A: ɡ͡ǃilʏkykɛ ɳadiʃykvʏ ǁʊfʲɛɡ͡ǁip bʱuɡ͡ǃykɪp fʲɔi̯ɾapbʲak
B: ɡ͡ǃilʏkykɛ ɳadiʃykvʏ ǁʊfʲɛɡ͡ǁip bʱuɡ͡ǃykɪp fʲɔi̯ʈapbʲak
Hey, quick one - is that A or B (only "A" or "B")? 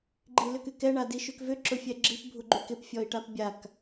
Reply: B